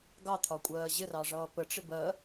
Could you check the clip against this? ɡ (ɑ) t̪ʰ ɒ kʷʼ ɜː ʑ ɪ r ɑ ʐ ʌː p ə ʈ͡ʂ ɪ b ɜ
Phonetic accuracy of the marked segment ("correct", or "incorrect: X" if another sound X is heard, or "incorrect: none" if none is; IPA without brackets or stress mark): correct